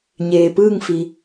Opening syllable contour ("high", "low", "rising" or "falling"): low